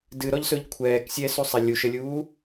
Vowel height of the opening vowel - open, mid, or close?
close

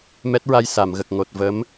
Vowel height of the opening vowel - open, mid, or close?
mid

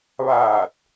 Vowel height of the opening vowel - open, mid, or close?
open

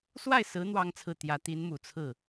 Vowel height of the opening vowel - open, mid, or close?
open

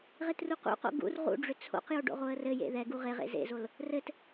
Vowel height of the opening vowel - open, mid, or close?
mid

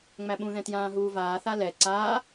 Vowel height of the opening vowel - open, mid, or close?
open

